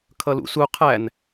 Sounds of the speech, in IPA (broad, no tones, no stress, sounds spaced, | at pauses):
kʰ ʌ l ṵ s u qʰ æ n